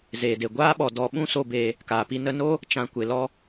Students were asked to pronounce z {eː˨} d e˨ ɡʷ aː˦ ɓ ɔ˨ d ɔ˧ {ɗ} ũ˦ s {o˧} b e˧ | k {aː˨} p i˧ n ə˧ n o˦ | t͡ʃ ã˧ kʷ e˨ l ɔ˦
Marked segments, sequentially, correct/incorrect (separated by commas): correct, incorrect, correct, correct